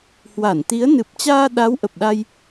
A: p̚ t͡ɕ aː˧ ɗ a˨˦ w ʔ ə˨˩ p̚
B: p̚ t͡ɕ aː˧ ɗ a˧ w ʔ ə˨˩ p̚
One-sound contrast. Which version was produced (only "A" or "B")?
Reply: A